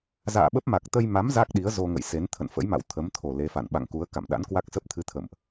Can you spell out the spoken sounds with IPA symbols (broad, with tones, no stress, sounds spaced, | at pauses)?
z a̰ː˧˨ ɓ ə˦˥ p̚ m a˨˩ k̚ t̪ ə˧ j m a˨˦ m z a˦˥ k̚ ɗ i˨˦ ə̯ z o˧ ŋ ə̰˧˨ j s e˨˦ n t̪ʰ ə̰˧˨ n f ə̰˧˥ j m a̰˧˨ w t̪ʰ ə˨˦ m t̪ʰ o˨˩ l e˨˦ f a̰˧˨ n ɓ a̰˧˨ ŋ k u˨˦ ə̯ k a̰˧˨ m ɗ a̰˧˥ n k w a˦˥ k̚ s ə˦˥ p̚ t̪ʰ ɨ˧ t̪ʰ ə̰˧˨ m ʔ